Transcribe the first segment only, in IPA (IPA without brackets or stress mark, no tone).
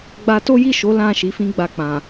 ɡ͡b